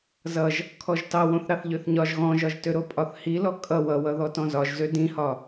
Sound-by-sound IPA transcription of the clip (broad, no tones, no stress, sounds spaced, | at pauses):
z ʌ ʒ | kʰ ɔ ʒ t ɑ w õ θ ɾ ɑ θ ʎ ø θ ɲ ɒ ʒ ɣ ɔ̃ ʒ ɒ ʒ t ø ɾ o pʼ ɒ θ h i l ɔ kʼ ʌ w ʌ w ʌ ð ɔ t ɔ̃ z ɒ ʒ z ø d ĩ h ɒ